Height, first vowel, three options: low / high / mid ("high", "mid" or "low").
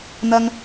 low